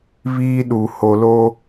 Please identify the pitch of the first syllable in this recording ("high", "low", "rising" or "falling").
high